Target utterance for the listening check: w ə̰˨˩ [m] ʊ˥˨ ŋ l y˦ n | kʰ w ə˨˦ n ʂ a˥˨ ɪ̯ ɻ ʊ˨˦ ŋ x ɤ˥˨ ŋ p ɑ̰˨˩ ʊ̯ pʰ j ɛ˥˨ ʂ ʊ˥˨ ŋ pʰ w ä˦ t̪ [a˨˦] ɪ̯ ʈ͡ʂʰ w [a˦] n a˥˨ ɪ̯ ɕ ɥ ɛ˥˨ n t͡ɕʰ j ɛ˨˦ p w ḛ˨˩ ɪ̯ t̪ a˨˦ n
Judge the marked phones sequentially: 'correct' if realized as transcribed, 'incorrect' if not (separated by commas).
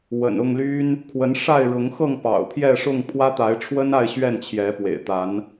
incorrect, correct, incorrect